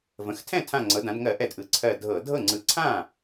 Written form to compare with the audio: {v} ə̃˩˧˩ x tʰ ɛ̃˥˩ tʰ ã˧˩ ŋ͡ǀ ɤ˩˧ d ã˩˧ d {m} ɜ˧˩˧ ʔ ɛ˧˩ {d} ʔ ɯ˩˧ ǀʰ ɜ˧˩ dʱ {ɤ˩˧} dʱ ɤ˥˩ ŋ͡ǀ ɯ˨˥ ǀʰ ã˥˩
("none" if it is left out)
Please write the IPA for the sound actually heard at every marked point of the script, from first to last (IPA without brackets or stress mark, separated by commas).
v, ŋ, d, ɤ˧˩˧